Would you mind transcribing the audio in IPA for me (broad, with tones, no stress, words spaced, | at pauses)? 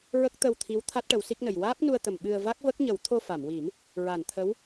ɹə˦˥k̚t̪ə˧wt̪ʰi˧˥w t̪ʰa˦˥t̚ʈə˨˩˦w si˦˥k̚nə˨˩j waː˦˥p̚nu˧ə̯t̪ə˨˩m ɓɨ˧ə̯ va˦˥k̚və˦˥k̚ɲə˨˩˦w t̪ʰo˧fa˨˩˨mwi˨˩˦m | ɹa˨˩˨nt̪ʰə˧˥w